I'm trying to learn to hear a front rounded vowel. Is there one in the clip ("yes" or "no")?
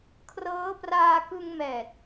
no